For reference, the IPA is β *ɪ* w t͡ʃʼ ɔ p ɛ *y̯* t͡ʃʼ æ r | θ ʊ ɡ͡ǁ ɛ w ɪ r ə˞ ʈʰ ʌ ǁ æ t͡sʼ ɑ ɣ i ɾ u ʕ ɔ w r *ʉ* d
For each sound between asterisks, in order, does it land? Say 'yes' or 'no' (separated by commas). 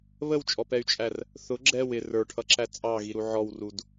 no, yes, no